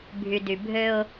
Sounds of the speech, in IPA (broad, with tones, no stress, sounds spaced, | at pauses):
bʱ y˨ d y˨ bʱ ø˦ ʊ̯